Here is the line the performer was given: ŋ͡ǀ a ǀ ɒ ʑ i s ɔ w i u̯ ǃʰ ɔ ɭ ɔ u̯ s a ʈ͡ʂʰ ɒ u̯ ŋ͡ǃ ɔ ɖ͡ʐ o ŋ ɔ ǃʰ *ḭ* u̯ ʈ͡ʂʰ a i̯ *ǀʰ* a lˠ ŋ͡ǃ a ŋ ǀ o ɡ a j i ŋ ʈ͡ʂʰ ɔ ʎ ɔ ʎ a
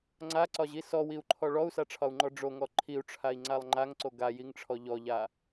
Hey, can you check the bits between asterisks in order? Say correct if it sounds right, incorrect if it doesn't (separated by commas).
incorrect, incorrect